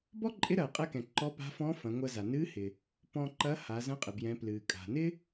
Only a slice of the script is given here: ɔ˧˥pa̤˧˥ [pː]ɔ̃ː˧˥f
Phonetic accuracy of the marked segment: incorrect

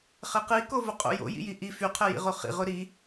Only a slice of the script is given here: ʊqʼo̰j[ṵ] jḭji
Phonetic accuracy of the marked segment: incorrect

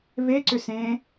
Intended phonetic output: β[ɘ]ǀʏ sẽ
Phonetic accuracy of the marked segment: incorrect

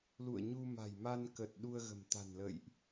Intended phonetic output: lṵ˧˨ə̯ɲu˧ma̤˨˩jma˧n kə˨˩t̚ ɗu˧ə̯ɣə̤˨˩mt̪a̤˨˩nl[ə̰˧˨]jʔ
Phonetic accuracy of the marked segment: correct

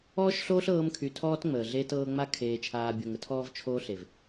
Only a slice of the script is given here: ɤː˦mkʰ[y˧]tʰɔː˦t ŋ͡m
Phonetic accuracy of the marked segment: correct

